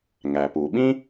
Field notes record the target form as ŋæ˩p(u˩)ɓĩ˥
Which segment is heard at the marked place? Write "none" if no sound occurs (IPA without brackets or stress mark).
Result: u˩